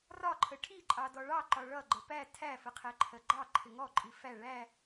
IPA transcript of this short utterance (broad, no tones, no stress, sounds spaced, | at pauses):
r ɒ ǃʰ ə ʈʰ i ǃʼ ɑ d ɔ ɭ ɑ ǃ ɒ ɭ ʌ ɡ͡ǃ ə p æ tʰ æ f ə qʰ æ ǃʰ ɜ ɡ͡ǃ ɑ ǃʰ ɪ ŋ ɔ ǃʼ i f æ ɭ æ